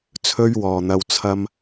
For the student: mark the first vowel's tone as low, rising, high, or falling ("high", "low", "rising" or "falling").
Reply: high